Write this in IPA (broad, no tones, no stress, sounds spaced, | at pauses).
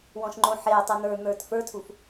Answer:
w ɔ̃ ʃ ŋ͡ǃ õ ħ e tˤ u n̪ ə˞ n̪ ə˞ t f ə˞ tʰ u f